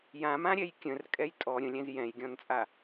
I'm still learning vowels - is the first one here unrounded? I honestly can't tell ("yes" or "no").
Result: yes